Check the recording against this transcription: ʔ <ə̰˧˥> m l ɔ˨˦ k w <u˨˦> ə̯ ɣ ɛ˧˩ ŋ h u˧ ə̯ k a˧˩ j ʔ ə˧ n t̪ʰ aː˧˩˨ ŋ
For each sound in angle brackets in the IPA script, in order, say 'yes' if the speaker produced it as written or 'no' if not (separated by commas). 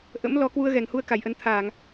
yes, no